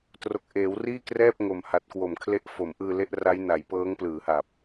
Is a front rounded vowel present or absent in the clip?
absent